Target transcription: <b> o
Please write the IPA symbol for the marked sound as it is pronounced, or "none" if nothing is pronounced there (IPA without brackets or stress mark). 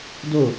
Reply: d